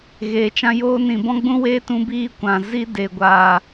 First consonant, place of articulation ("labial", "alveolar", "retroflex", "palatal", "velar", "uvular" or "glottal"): velar